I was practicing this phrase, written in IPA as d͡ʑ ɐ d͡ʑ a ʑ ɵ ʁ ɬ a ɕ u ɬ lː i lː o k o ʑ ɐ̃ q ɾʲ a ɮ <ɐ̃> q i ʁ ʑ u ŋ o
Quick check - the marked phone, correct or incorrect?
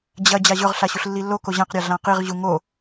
incorrect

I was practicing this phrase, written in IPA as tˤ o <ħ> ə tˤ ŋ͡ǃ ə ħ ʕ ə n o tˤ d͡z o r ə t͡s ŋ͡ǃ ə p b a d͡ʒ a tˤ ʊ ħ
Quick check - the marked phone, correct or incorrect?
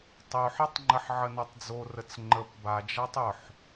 correct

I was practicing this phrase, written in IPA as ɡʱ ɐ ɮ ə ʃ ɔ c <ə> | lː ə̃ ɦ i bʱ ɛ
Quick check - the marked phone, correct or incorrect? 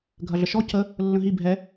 correct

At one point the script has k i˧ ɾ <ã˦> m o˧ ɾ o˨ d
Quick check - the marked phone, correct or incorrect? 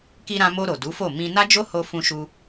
incorrect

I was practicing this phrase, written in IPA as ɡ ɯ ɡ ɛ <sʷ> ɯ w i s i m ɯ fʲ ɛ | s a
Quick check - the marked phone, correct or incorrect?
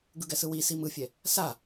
incorrect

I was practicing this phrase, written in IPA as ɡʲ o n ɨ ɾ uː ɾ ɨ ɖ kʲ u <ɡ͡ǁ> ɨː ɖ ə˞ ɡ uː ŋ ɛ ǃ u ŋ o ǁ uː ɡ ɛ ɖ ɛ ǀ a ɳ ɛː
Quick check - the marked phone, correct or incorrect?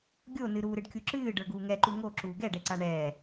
incorrect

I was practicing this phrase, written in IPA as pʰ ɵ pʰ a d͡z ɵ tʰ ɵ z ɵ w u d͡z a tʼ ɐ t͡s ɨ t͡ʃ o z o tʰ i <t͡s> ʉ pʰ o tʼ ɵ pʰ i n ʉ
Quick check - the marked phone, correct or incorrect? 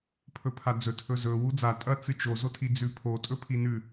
incorrect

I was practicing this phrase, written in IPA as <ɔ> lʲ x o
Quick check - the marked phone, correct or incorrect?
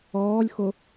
incorrect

